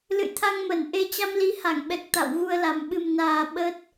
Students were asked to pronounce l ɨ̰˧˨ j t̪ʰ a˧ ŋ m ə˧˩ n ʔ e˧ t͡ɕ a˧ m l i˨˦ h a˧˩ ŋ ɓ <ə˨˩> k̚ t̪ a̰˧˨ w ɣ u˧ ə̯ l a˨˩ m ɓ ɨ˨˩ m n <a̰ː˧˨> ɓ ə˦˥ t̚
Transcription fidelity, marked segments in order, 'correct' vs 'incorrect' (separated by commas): incorrect, incorrect